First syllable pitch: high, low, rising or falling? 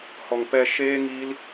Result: low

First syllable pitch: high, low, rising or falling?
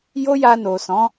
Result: high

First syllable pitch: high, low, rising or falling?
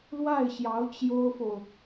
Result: falling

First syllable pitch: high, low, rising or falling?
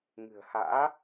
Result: low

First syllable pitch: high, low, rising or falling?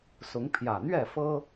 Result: rising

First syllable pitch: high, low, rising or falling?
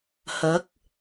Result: rising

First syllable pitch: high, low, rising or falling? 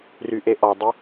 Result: low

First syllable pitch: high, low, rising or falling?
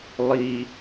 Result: low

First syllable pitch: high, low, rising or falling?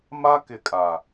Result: high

